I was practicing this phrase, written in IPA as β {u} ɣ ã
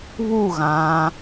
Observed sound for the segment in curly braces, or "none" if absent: u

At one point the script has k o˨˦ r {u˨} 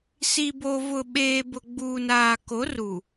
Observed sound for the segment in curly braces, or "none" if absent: u˨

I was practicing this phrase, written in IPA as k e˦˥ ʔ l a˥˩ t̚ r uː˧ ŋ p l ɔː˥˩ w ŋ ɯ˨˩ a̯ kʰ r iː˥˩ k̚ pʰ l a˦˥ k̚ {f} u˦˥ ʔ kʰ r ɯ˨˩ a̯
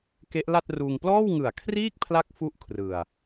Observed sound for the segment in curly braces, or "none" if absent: f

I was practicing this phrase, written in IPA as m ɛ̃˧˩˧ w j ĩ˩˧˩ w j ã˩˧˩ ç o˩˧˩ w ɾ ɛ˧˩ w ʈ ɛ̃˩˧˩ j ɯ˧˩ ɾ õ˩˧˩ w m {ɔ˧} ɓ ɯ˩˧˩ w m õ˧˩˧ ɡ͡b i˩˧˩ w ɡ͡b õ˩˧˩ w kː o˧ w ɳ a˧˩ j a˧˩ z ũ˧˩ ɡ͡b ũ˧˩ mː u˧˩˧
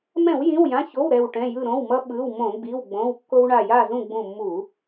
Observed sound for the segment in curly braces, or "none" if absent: ʌ˧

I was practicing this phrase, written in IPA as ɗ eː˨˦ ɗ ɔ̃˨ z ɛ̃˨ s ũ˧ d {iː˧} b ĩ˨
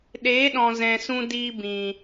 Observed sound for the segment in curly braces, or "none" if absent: iː˧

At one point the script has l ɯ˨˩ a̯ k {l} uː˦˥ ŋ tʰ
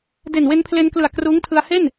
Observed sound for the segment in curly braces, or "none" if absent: r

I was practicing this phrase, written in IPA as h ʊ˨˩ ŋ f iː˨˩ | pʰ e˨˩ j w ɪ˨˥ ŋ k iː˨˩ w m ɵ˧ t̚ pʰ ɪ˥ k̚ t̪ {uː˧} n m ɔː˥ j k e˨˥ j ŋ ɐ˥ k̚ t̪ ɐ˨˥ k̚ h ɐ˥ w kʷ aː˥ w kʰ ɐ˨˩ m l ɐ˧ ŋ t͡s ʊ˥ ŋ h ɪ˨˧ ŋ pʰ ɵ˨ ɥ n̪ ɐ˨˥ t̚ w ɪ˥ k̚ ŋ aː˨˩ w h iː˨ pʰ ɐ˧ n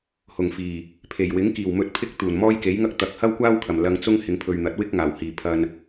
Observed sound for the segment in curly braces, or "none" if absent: uː˨˩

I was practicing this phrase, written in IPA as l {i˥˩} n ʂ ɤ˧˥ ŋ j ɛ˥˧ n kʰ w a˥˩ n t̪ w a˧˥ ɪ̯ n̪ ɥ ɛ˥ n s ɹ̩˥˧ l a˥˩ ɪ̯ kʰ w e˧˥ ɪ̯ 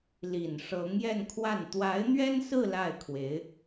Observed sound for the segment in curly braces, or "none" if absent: i˨˩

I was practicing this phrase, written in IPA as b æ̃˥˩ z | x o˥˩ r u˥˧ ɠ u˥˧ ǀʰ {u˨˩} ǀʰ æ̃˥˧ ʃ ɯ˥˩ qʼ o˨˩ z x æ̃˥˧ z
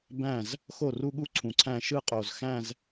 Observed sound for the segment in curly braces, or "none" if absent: ũ˨˩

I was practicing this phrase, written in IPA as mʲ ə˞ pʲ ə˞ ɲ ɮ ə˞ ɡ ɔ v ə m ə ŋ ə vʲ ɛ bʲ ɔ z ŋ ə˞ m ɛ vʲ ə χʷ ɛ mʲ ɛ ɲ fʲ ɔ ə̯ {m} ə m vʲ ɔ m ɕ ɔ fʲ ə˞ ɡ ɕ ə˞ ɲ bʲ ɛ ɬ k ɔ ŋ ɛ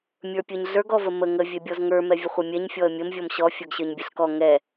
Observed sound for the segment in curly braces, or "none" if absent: mʲ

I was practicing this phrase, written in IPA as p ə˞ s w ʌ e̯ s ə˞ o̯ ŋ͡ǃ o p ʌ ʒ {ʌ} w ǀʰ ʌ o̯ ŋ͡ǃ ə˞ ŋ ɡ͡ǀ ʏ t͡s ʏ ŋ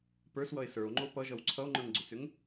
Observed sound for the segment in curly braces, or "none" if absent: ʌ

